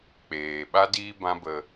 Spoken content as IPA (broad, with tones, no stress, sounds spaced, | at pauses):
k͡p eː˨ ɓ a˦ d iː˦ b ã˦ b ə˧